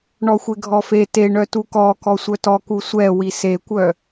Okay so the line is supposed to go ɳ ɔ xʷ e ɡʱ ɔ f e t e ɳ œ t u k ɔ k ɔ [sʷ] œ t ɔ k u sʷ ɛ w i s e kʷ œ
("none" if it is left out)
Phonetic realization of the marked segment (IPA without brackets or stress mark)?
sʷ